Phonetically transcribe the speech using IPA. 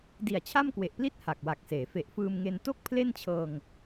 di˨˩a̯t͡ɕʰa˥˩mkwe˨˩ʔpli˥˩t̚ ha˨˩k̚wa˨˩k̚seː˩˦ fe˨˩ʔfɯː˧mŋe˧n to˥˩k̚pʰle˥˩nt͡ɕʰɤː˧ŋ

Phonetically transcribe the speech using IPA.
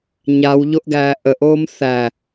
ɲawʎoʔɡæː ʔəʔoːm θæ

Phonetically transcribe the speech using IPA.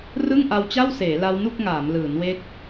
rɯ˥˩ŋʔa˧wt͡ɕa˥˩wseː˩˦ la˦˥wnu˥˩k̚ŋaː˩˦m lɯː˩˦nwe˦˥k̚

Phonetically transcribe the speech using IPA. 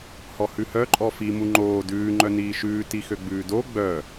hɔhʉhœ ǃʼɔfi muŋ͡ǃoː dʉː ŋ͡ǃœniːʃʉː tixøɡ͡bʉːdo ɡ͡bœ

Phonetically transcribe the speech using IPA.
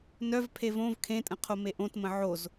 nœv pʰevõv kʰẽtʼə̃ qʰomeʔõt mə̃ʕoz

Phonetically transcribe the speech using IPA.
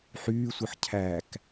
ħyːsʷɯħ cʰæk

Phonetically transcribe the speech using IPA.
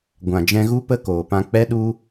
ɡʷã˨d͡ʒɛ̃˧ ɣu˦pə˦ koː˨pã˧k͡pɛ˦ɗu˦

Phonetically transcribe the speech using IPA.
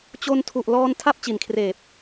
t͡ɕo˧ntʰu˨˩ʔ lɔː˧n tʰa˥˩p̚t͡ɕi˨˩nkʰreː˨˩p̚

